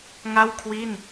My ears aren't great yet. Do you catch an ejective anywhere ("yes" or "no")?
no